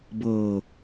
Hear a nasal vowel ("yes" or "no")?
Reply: no